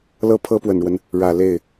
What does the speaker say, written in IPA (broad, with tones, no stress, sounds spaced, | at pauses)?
l ɤ˥ pʰ ɤ˥ p w ə˨˩ n ɻ w ə˦ n | ɻ ä˨˩ l e˥˩ ɪ̯